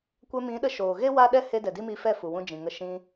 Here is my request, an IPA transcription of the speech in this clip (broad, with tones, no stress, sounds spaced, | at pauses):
kʷ ɛ˧ m ĩ˨˦ ɗ ə˧ ʃ oː˨ ɣ e˦ w a˦ ɗ ɛ˦ h e˦ d ɛ˨ d i˦ m i˧ f ɛ˦˨ f u˨ w ũ˧ d͡ʒ ĩ˨ ŋ ə˧ ʃ ĩ˧